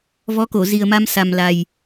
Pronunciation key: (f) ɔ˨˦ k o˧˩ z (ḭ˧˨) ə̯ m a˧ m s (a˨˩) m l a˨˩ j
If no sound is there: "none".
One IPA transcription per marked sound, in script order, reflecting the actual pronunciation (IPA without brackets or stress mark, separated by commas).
v, i˨˩, a˨˩